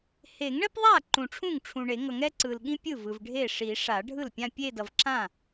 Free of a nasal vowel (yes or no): no